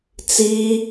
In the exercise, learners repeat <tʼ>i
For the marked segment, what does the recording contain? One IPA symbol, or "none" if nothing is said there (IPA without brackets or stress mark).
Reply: t͡s